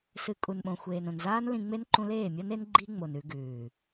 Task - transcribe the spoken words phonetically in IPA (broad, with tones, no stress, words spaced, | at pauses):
sɨ˧ kʼu˨nɓõ˨xʷeː˨n õ˨nzaː˦n lĩ˧ŋ͡me˦n ǃũ˧leː˦˨mʲɐ˦n e˦nɡ͡ǃi˦ŋ͡mo˨n ʉ˧ɡʉː˨